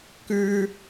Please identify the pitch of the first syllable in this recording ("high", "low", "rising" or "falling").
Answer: high